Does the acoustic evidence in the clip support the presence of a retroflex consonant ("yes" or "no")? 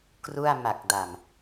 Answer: no